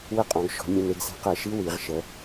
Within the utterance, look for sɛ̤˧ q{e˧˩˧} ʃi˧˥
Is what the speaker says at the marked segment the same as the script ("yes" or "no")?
no